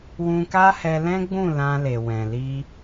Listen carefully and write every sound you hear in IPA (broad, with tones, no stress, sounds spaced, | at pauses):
w ũ˧ k a˦ h ɛ˧ l ɛ̃˦ ɡ͡b ũ˦˨ l ã˧ l e˨ w ɛ̃˨ l i˧